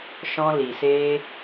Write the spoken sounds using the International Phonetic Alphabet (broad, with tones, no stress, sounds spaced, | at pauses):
ʃ ɔ̃˧ l i˨ s e˧